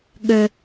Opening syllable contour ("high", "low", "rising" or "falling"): low